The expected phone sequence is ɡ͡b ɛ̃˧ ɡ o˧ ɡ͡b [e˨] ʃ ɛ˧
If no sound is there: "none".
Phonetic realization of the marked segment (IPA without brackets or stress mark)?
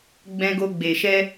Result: e˨